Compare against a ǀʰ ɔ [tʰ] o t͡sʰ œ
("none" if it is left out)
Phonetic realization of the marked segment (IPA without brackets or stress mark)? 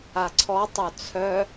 tˤ